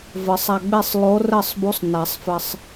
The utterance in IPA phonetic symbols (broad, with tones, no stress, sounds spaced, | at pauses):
v ɘ˨˩˦ sˤ a˧ ɡ͡b e˥˨ sˤ lˠ o˧˥ r ɘ˥˨ sˤ b u˧˥ sˤ n a˨˩˦ sˤ f ɘ˧ sˤ